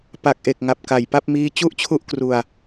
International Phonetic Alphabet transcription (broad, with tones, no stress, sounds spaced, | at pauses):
p a˨˩ k̚ ʔ e˨˩ k̚ ŋ a˨˩ p̚ k a˨˩ j p a˦˥ p̚ m iː˦˥ t͡ɕ u˥˩ ʔ t͡ɕʰ u˥˩ ʔ k r u˧ a̯